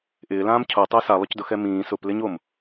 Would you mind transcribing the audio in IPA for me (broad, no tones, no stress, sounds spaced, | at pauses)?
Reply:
ʔ ɪː l ãː m cʰ o tˤ ɪː s a lˠ ʊ c d ʊ x ɛ m ĩː s ʊ p l ɪ ɲ o m